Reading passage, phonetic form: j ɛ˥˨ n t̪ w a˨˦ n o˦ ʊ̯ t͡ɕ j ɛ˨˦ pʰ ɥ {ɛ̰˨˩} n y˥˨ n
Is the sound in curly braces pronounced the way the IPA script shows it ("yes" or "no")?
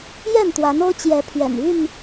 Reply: yes